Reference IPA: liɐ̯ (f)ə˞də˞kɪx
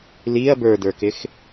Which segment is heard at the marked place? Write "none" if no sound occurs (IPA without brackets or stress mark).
b